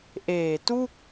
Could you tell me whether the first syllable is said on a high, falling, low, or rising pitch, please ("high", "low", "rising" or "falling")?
low